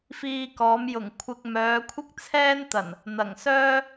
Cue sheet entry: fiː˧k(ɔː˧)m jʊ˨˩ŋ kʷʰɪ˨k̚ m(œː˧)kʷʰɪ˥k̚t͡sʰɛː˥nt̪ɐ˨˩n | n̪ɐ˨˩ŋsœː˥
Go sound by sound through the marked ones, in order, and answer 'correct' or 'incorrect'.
incorrect, incorrect

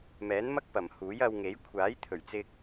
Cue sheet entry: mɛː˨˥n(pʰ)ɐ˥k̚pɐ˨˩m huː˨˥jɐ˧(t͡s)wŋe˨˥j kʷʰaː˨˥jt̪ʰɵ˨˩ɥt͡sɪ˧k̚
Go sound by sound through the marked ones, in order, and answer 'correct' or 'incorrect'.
incorrect, incorrect

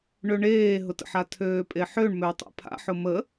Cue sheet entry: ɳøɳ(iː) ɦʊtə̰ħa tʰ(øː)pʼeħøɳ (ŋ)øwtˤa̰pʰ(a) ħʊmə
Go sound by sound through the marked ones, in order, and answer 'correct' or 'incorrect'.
incorrect, correct, incorrect, incorrect

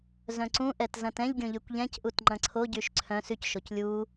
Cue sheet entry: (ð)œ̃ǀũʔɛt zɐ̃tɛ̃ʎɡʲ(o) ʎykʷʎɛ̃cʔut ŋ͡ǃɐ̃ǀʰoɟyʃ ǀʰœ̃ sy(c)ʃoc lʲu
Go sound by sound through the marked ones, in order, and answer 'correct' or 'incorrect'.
incorrect, incorrect, correct

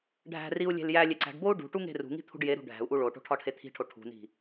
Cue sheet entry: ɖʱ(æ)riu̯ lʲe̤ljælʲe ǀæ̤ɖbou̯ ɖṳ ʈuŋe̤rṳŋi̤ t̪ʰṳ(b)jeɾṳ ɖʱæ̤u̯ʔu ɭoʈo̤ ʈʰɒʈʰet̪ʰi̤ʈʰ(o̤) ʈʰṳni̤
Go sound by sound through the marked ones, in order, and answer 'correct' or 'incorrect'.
incorrect, incorrect, incorrect

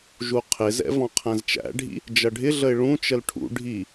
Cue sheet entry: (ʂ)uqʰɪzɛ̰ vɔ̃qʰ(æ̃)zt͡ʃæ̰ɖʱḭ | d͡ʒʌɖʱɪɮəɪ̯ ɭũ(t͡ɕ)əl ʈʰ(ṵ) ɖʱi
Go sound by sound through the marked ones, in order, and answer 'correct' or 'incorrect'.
incorrect, correct, incorrect, correct

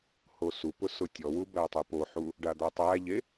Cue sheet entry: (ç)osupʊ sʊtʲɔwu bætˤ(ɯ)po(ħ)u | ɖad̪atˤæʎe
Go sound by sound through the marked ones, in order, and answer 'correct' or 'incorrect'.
incorrect, correct, correct

